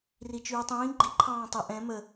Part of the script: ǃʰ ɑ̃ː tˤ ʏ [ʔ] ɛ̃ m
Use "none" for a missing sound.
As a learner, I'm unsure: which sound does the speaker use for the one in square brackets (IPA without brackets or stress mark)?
ʔ